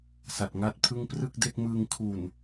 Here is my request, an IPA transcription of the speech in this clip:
sa˨˩t̚ŋa˥˩t̚pʰɯ˥˩ŋ prɯ˥˩k̚de˥˩k̚mɯː˧ŋ kʰu˨˩n

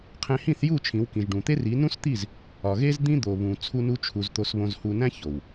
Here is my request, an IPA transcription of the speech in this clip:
qʰẽ˧hĩ˦˨θju˦˨ t͡ʃʰĩ˨˦wkĩ˨ʒ ɖũ˨t̪e˦ri˨˦ nũ˦st̪i˦˨z | ɒ˨ ɣe˦zd̪ĩ˦ d̪o˨βũ˨ t͡sʰu˦nu˦t͡ʃʰu˧z t̪o˧sβõ˧zhu˧næ̃˦ ço˨w

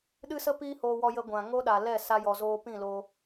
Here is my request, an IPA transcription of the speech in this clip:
ɗɨ˦sə˦ piː˦hoː˧wɔ˧jə˧ ɡʷã˨ ŋo˦ɗa˨ lɛ˦˨sa˧jɔ˨zoː˧ pĩ˦˨lo˧

